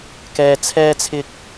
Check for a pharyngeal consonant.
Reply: absent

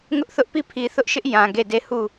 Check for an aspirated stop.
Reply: present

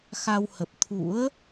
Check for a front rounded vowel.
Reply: absent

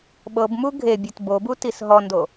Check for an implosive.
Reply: present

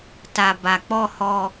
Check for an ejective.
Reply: absent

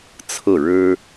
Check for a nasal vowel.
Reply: absent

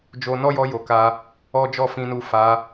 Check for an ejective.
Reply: absent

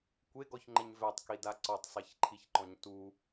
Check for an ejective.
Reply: absent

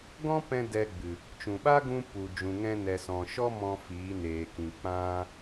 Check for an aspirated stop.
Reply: absent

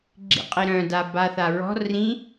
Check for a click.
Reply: present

